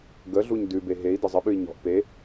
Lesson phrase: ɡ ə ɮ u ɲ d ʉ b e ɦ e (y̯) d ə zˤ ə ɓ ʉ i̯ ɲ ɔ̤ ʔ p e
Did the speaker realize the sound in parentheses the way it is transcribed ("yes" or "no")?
no